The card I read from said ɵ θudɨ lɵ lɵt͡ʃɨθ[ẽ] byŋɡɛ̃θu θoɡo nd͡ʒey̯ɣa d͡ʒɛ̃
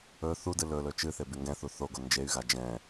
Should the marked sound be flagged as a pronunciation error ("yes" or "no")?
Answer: yes